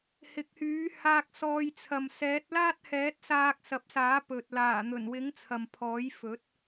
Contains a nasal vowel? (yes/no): no